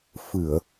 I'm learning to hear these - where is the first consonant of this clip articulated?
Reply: lips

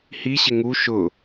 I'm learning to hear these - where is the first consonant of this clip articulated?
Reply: throat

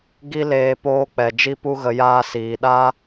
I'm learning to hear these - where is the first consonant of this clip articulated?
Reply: velum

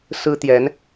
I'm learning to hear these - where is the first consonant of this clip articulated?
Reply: tongue tip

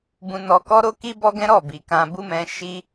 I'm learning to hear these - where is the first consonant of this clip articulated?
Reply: lips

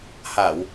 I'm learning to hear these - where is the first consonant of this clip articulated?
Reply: throat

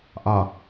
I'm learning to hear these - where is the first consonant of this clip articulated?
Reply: throat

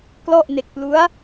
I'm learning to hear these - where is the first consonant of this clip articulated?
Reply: velum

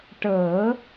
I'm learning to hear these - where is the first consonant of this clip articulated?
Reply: retroflex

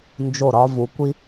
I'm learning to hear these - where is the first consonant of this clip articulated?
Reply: tongue tip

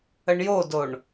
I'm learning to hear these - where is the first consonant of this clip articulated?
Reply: retroflex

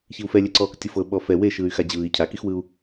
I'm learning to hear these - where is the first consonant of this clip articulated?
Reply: palate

